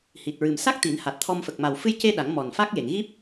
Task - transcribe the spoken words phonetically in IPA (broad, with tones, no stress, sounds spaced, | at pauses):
h i˨˩ t̚ ɹ ɨ˨˩ m s a˦˥ k̚ t̪ i˨˩˦ n h a˨˩ t̚ t̪ʰ ɔ˧ m f ə˨˩ k̚ m a˨˩ w f ɨ˧ j c e˧ ɗ a˨˩˦ ŋ m ɔ˨˩ n f a˦˥ k̚ j e˨˩˨ ŋ ɣ i˦˥ p̚